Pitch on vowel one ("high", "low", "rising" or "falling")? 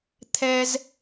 high